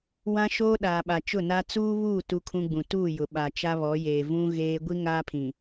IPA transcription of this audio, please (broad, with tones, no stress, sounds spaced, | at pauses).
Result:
w ã˦ ʃ oː˦ ɗ aː˨ ɓ a˨ t͡ʃ ʊ˦˨ n a˦ t͡s uː˦ β uː˦˨ t u˦ kʰ ũ˦ ɡ͡b ũ˨ t uː˦˨ j ʊ˨ ɓ a˨ t͡ʃ a˦ β ɔ˨˦ j eː˨ v ũ˦ ɣ eː˦ ɡʷ i˦ ŋ aː˦ pʰ ĩ˨